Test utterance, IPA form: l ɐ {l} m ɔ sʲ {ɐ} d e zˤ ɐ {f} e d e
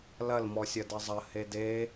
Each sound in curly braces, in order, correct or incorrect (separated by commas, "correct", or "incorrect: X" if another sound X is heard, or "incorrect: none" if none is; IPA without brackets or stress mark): correct, correct, incorrect: h